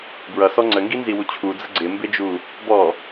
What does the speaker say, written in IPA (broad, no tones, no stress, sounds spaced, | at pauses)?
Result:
b ɹ ʌ s ɔ ŋ͡ǀ ə ŋ ɡ i n z i w u t͡ɕʰ u d͡z ə ɡ͡ǀ ɪ m b ɪ d͡ʒ u | b ɔ